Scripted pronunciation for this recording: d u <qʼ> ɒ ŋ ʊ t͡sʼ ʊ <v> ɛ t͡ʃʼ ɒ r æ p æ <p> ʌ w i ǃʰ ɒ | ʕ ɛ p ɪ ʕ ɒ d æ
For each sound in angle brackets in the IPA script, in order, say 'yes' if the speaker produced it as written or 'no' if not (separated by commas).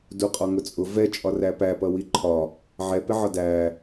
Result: yes, yes, yes